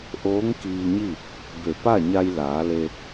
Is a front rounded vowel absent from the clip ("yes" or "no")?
yes